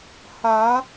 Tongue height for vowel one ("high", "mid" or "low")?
low